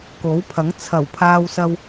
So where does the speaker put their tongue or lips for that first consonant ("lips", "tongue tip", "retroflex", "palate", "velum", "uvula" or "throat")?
velum